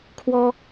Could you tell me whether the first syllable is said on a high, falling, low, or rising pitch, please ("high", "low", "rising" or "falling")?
high